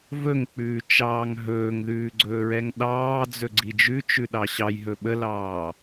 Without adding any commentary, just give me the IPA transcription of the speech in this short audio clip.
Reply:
v ɵ ŋ k͡p ʉː t͡ʃ ɑː ŋ ɦ ɵː ŋ ð ʉː ɡ͡ǀ ɵː ɹ ɛ ŋ ɗ ɑː d͡z ɵ ɡ͡ǀ i d͡ʒ ʉ t͡ʃ ʉ ɗ ɑ ɕ ɑ j ɦ ɵ ɓ ə l ɑː

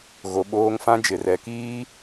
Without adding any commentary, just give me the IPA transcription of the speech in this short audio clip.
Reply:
ɣ o˨ ɓ oː˦ ŋ f ã˦ d͡ʒ ɪ˨ r ɛ˨˦ k iː˦

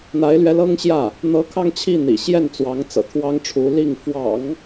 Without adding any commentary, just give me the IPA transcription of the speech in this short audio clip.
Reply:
n̪ a˧˥ ɪ̯ l ɥ ɛ˧˥ l ɤ˥ ŋ ɕ j ä˥˩ | n̪ ɤ˧˥ kʰ ɑ˥˧ ŋ t͡ɕʰ i˥˩ n̪ ḭ˨˩ ɕ j ɛ˥˩ n t͡s w ɑ˧˥ ŋ t͡s ɤ̰˨˩ t̪ʰ w ɑ˥ ŋ ʈ͡ʂʰ u˧˥ l i˥˩ ŋ f w ɑ̰˨˩˦ ŋ

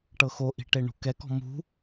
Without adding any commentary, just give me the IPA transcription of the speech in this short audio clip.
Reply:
ʈ ɤ x o ʔ i̤ ʈ e ɳ ṳ k ɛ k ɔ̤ m ṳ

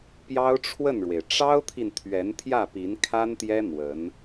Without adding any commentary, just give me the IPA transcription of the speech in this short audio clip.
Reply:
p j ɑ˥ ʊ̯ ʈ͡ʂʰ w ə˥˩ n ɻ w e˩ ɪ̯ ʈ͡ʂ ɑ˥ ʊ̯ t̪ʰ i˨ n t̪ʰ ɥ ɛ˧˥ n t̪ʰ j ä˥˩ p i˧˥ n kʰ a˥ n t̪ j ɛ˥ n̪ w ə˧˥ n

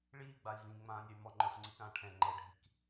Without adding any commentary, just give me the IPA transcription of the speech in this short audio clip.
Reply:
ɭ iː ɡ͡b a i̯ v ĩ ŋ͡m ãː nʲ ɛ y̯ m ɔ ŋ͡ǃ ə˞ f ŋ͡ǀ i k ãː ʈʰ ɛ̃ ŋ͡ǃ ɛ ɖʱ i k

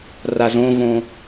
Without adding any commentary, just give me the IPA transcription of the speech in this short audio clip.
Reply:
r a z õ v õ

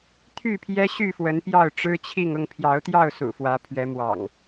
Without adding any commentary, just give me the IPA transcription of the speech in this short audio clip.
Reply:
t̪ʰ y˥˨ pʰ j ɛ˦ ɕ y˥˨ f w ə˨˦ n p j ɑ˥˨ ʊ̯ ʈ͡ʂ ɻ̩˦ t͡ɕʰ i˥˨ ŋ ʊ˥˨ ŋ pʰ j ɑ˨˦ ʊ̯ t̪ j ɑ˥˨ ʊ̯ s ṵ˨˩ f w ä˨˦ pʰ ɥ ɛ˨˦ m w ɑ̰˨˩ ŋ

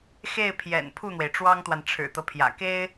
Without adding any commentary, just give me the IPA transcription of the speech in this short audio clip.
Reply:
x e˥˩ ɪ̯ pʰ j ɛ̰˨˩ n pʰ u˥˩ n̪ w e˩ ɪ̯ ʈ͡ʂ w ɑ˥ ŋ t̪ w a˨ n ʈ͡ʂʰ ɻ̩˨˩ t̪ ɤ˦ pʰ j ä̰˨˩ k e˥ ɪ̯

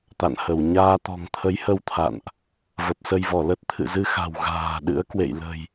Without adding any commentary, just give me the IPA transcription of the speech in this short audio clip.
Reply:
t̪ a̰˧˨ n h ə˧˩ w ɲ aː˧ t̪ ɔ̤˨˩ ŋ t̪ʰ ə˨˦ j h ə˧ w t̪ʰ a̰˧˨ n ʔ | v ə˨˩ p̚ s ə˧ j v ɔ˧˩ l ə˦˥ t̚ t̪ʰ ɨ̰˧˨ z ɨ˧ x a̤˨˩ w ɣ a̤ː˨˩ ɗ ɨ̰˧˥ ə̯ k w ḛ˧˨ j l ə̤˨˩ j

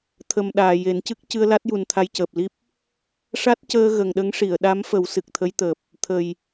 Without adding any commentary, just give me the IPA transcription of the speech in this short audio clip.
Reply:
t̪ʰ ə˨˩ m ɗ aː˨˩ j e˨˩˦ n c ɨ˦˥ k̚ c ɨ˧ ə̯ l a˦˥ t̚ j u˨˩ n t̪ʰ a˧ j c əː˨˩ p̚ l i˦˥ p̚ | ʂ a˦˥ t̚ c əː˧ ɣ ə˨˩ ŋ ɗ ə˧˥ ŋ ʂ i˨˩˨ ə̯ ɗ a˧˥ m f ə˨˩˦ w s ɨ˨˩ k̚ t̪ʰ ə˧˥ j t̪ əː˨˩ p̚ | t̪ʰ ə˨˩ j

